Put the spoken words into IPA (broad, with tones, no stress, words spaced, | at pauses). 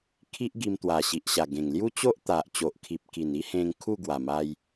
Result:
kʰi˦ʔ ɡi˧m t̪wa˨˩ɕi˨ʔɕa˨˩ɡẽ˨˩ŋ lju˦t͡ɕo˦ʔt̪a˨ʔ t͡ɕo˨ʔkʰi˨p̚ki˨˩n i˦hẽ˧ŋ kʰu˥˧ɡwa˨˩ma˧j